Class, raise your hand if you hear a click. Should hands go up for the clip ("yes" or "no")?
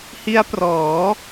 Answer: no